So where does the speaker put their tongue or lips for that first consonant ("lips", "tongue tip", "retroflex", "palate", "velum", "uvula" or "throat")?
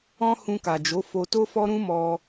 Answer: throat